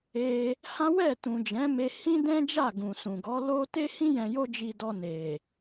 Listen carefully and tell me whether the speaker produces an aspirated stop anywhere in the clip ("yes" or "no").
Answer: no